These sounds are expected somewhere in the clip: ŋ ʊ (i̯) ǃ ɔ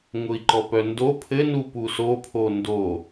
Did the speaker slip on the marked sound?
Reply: no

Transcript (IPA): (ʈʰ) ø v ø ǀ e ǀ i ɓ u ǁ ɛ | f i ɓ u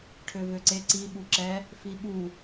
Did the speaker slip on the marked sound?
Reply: no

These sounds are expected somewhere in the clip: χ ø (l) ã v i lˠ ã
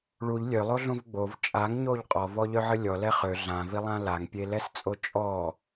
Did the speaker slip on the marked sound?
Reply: yes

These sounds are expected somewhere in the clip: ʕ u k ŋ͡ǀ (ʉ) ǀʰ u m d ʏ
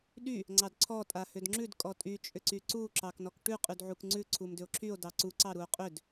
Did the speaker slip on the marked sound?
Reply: no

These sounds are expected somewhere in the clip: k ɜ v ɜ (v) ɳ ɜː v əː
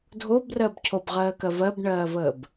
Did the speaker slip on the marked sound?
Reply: yes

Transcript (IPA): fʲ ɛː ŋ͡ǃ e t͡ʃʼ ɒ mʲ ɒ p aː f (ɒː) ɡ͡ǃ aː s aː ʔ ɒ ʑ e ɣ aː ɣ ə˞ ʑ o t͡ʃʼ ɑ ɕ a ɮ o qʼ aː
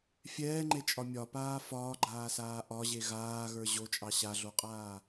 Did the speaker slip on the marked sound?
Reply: no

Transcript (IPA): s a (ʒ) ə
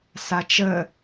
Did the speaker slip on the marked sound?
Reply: yes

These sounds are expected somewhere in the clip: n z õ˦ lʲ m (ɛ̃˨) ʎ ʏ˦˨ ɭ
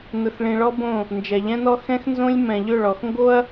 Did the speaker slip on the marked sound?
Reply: no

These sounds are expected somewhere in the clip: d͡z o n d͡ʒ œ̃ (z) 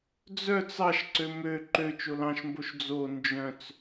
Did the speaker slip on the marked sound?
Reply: yes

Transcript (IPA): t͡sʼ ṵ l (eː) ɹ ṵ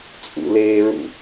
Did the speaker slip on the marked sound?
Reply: no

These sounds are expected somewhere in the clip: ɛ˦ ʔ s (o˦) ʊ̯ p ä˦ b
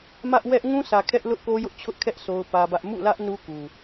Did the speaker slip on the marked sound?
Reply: no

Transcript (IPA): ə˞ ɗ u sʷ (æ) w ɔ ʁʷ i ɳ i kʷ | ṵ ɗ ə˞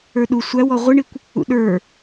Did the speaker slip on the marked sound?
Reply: no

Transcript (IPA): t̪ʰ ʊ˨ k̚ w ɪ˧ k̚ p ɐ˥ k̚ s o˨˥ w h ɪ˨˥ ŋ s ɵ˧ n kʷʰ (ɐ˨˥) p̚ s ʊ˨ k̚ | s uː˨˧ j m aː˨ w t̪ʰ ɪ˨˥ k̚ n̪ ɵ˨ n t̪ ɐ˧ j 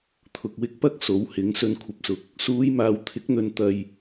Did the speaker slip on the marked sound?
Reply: yes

